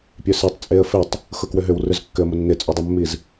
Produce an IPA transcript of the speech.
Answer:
pʲ ø s e tˤ t͡sʼ e ə̯ f e tˤ | x ʊ k w ʏ ɦ ʏ w r ʏ z kː ʏ ə̯ m ʊ nː ɪ t͡sʼ ø dˤ ɪ mː i z

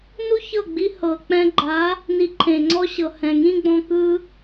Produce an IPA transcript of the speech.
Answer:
n u˦ ç ɤ˦˨ ɡ͡b i˧ h ɤ˨ k͡p ɛ̃˧ ɡ͡ǃ a˨˦ | n i˧ ǃʰ ẽ˨ ŋ͡ǀ ɔ˦ ɕ ɤ˨ h ɛ̃˨ ŋ ĩ˦ ɡ͡b ɔ̃˧ k ɯ˧

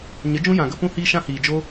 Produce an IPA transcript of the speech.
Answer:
ɲ ə˨˦ d͡ʒ ũ˦ j ã˨ ɡ ə˦ p ũ˦ h iː˦ ʃ ã˦ h iː˨ d͡ʒ o˦

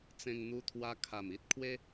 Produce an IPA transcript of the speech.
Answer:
t͡s ẽ˧ ŋ n̪ u˧ t̪ʰ w a˧ kʰ a˨˩ m i˦ t̚ kʰ w e˦

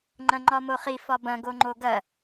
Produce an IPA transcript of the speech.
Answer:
ŋ͡ǃ ɐ̃ ŋ͡ǃ ɒ m o χ i f ɒ b ɐ̃ ɡ o ŋ͡ǃ o ɡ ɐ

